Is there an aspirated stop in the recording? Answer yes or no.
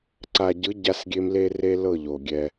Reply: no